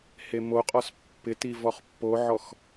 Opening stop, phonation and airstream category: ejective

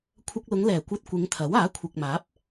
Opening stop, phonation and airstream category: aspirated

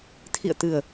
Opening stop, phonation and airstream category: aspirated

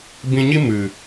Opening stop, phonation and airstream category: plain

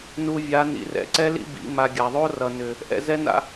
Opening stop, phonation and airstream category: click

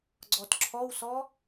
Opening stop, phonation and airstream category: click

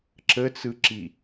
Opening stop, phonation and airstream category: click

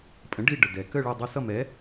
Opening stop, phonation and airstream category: ejective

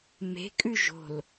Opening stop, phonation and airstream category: ejective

